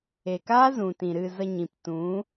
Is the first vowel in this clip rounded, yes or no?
no